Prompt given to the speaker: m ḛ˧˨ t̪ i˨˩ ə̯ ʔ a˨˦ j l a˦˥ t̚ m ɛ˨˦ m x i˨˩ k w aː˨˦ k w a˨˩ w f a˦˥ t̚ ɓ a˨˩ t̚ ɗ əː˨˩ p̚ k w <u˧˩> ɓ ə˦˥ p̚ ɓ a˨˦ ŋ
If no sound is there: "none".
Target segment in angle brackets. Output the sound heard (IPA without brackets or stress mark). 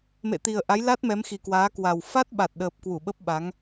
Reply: u˧˩